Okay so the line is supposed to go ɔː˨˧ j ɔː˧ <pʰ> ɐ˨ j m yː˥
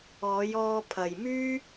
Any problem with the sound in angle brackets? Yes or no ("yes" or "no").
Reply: no